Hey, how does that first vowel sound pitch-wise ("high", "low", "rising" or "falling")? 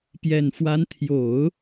low